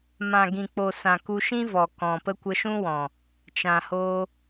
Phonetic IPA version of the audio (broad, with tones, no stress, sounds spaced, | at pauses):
m ã˨ ɡ ĩ˨ k͡p o˨ s ã˨ k u˧ ʃ ĩ˦ v ɔ˨ k ɔ̃˨ p ə˦ kʷ ə˧ ʃ ũ˦ w ɔ̃˨ | t͡ʃ ã˨ h o˧